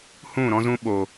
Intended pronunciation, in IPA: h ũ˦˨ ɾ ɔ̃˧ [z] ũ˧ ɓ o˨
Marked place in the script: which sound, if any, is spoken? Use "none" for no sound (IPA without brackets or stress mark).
z